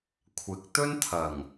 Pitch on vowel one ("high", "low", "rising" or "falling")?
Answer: rising